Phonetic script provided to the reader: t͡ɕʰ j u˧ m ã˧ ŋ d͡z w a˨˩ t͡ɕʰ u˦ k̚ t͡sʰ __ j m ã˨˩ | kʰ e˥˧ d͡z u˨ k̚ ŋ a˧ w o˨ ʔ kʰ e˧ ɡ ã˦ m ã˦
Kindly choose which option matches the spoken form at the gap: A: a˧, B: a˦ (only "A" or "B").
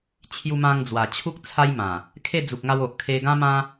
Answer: B